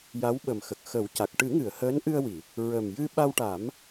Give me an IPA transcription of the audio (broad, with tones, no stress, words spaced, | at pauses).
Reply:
ja˧˥wɓə˨˩mxə˨˩k̚ xə˨˩˦wca˨˩k̚ ʈɨ˨˩˦ŋɨ˨˩˨ə̯ həː˧˥nʔɨ˧ə̯wi˨˩˨ | ɹə˨˩mjɨ˧ ɓa˧wʈa˨˩˦m